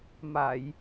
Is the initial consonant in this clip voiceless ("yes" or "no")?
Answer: no